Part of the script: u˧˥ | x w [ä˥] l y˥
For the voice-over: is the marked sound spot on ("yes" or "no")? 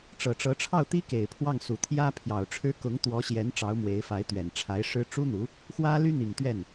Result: yes